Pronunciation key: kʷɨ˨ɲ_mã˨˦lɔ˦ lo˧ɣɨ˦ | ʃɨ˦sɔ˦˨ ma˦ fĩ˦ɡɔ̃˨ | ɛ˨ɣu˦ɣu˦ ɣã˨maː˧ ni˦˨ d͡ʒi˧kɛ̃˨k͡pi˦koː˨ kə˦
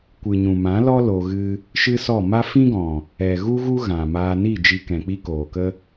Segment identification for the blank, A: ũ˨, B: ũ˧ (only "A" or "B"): A